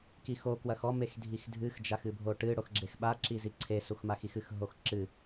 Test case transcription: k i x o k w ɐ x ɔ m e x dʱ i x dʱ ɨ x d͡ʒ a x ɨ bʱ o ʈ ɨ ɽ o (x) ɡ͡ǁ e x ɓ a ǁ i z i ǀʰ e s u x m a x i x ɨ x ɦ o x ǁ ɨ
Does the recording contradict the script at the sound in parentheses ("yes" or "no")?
no